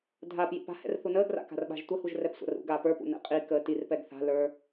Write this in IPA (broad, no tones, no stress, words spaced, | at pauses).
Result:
dʱaːp jḭpa̤hɛ̰r θunəːɡra̰ ka̤rɓa̤ʒtʷəhuʒ rɛpsʷa̰rṵɡaː pə˞pṵ nɛ̰qʼikəː tirpɛɡ θa̤lə˞